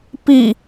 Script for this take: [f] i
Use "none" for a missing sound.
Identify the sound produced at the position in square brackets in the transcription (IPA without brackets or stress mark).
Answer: p